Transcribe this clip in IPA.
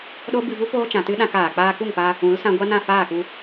ɗ o˦ b ɨ˧ v u˦ p oː˦ t͡ʃ ã˨ t ɨ˦ ɗ ã˦ k aː˨ k͡p aː˧ k u˦˨ ŋ p a˧ | ũ˨˦ l s ã˧ ɡʷ a˦ n ã˦˨ f aː˦˨ k u˧

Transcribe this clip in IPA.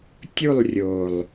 tʲ u˦˨ lˠ rʲ o˨ lˠ

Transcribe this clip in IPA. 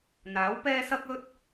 n̪ aː˨˥ w p ɛː˥ s ɐ˥ k̚ ɵ˥ t̚

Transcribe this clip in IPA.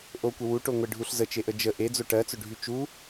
ʔ o kʷ ə w u ʈ o ŋʷ e ɖʱ u ɬ z ə t͡ʃ e ʔ ə d͡ʒ ə ʔ e d͡z o ʈ ɜ t͡s ɵ ɖʱ y t͡ʃ u

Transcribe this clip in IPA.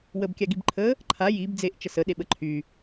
w ə b kʲ a ɡ i b ǃʰ ə | ǃʰ a j i b d͡z e ʔ t͡ʃ ə s ə ɗ e ɓ ə ǃʰ y

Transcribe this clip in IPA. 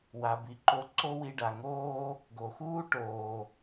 w a˨ b i˨ ǃ o˦ ǀ o˥ w i˦ ɖ a˨ ŋ oː˥ | ɡ o˨ x uː˥ ʈ oː˨

